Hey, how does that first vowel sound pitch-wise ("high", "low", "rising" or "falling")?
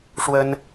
high